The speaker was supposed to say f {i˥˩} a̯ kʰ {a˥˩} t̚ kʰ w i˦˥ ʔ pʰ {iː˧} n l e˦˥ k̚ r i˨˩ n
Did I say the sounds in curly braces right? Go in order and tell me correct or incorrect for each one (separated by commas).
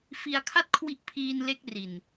incorrect, correct, correct